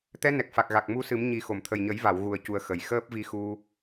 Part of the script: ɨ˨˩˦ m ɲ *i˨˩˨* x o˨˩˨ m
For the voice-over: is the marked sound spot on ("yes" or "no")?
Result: no